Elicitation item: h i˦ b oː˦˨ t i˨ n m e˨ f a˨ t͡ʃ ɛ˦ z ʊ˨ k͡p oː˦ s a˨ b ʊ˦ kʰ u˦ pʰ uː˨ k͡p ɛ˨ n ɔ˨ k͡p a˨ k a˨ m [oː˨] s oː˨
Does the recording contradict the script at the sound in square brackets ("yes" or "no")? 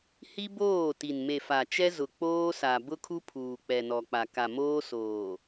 yes